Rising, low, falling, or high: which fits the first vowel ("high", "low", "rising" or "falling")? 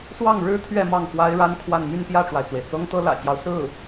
falling